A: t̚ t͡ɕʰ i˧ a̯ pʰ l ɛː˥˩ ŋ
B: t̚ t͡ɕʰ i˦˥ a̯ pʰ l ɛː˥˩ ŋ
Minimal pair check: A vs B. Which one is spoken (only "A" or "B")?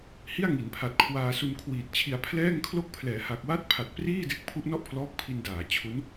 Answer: A